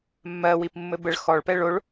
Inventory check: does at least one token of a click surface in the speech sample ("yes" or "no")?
no